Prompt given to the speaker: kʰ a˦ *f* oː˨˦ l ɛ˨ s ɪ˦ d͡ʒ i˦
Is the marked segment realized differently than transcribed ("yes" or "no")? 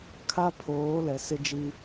yes